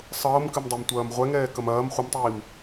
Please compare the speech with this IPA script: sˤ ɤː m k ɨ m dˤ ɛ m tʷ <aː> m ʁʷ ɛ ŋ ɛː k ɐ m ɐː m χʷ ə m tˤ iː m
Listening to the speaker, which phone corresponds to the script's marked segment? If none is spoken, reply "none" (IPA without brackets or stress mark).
ɐː